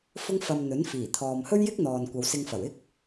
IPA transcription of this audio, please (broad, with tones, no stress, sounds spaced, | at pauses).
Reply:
f ʊ˥ ŋ f ɐ˧ m n̪ ɵ˨˥ n f iː˨˩ t̪ʰ ɔː˨ m h ɵ˥ ɥ j ɪ˥ k̚ n̪ ɔː˨ n kʷ ɐ˨˧ w s ɪ˧ ŋ f ɐ˨˩ w ɪ˥ k̚